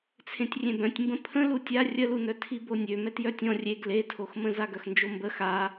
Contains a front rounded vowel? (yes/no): yes